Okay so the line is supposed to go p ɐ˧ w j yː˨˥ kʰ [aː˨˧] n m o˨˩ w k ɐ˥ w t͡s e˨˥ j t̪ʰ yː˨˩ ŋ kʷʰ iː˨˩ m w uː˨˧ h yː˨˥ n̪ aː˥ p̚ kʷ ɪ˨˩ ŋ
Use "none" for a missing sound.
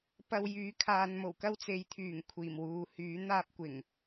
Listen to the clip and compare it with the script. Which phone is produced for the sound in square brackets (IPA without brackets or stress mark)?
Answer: aː˨˧